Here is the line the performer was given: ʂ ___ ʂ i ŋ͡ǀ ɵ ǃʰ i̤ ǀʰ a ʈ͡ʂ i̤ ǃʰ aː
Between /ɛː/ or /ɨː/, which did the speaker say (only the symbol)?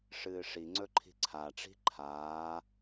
ɨː